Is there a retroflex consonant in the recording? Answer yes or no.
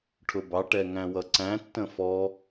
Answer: yes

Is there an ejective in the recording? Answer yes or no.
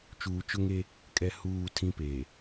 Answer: yes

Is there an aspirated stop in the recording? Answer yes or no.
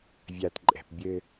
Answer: no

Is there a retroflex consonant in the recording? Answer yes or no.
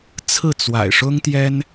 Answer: yes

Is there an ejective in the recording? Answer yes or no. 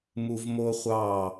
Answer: no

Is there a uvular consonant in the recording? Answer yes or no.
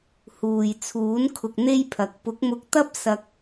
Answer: no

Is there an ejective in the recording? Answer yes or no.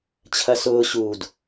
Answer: no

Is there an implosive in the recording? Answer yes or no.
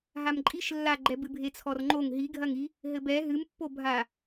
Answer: no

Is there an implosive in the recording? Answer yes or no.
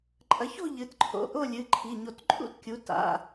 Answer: no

